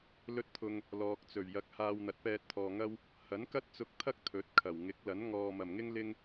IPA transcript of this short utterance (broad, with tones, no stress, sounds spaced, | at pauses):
l ɵ˥ t̚ t̪ʰ ʊ˧ ŋ | l ɔː˧ k̚ t͡s ɵ˨˩ ɥ j ɐ˨˥ k̚ h aː˧ w n̪ ɐ˨˥ t̚ p ɛː˧ t̚ t̪ʰ ɔː˨ ŋ ɐ˥ w | h ɐ˨˥ n k ɐ˥ t̚ t͡s ʊ˧ k̚ t̪ʰ ɐ˥ k̚ t̪ʰ ɵ˨˥ t̚ kʰ ɐ˨˩ w ŋ ɪ˨˥ k̚ l ɐ˨˥ n ŋ ɔː˨ m ɐ˨˩ m ŋ ɪ˥ ŋ l ɪ˥ ŋ